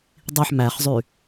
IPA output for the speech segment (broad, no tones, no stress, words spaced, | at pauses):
dˤiħ mæχzˤy